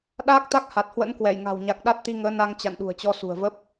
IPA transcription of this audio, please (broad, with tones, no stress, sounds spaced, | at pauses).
ɗ aː˦˥ k̚ t̪ a˦˥ k̚ h a˨˩ t̚ h w ə̰˧˥ n k w ɛ˧˩ j ŋ a̤˨˩ w ɲ a˨˩ k̚ ɗ a˦˥ t̚ t̪ i˧ ŋ əː˨˦ n a˧ ŋ t͡ɕ a̰˧˨ n ɗ ṳ˨˩ ə̯ t͡ɕ ɔ˧ s ṳ˨˩ ə̯ v ə˦˥ p̚